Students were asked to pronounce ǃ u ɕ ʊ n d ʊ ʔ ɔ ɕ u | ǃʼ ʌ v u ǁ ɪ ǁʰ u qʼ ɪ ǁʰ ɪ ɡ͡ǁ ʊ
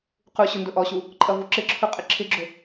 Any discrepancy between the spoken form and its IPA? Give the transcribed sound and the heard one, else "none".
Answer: ǃ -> q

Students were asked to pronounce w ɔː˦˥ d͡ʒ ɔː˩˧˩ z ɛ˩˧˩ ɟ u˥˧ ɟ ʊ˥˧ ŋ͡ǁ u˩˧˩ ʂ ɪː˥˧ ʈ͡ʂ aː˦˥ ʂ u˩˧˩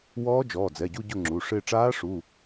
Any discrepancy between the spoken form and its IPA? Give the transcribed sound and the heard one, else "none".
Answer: z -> d͡z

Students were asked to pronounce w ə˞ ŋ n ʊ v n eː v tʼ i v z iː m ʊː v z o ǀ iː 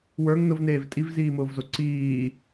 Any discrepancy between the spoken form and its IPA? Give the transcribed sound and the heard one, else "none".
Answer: none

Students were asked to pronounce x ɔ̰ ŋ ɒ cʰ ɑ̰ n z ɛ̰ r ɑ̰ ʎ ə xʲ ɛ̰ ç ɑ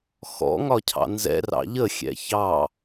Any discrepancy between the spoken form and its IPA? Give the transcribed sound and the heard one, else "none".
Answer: none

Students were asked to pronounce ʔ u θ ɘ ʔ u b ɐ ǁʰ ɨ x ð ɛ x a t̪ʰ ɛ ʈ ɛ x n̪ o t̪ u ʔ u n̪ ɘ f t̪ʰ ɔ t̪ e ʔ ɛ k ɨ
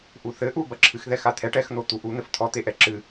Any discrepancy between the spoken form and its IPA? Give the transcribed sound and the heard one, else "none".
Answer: k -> ǁ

